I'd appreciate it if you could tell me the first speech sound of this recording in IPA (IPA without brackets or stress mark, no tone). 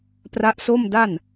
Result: p